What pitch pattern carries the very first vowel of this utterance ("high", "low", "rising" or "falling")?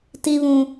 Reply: high